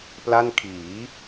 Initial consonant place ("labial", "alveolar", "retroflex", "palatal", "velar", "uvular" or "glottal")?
labial